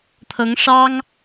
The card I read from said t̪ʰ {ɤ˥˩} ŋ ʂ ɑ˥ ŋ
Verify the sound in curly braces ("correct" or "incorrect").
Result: incorrect